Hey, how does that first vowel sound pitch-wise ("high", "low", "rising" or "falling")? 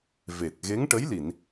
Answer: low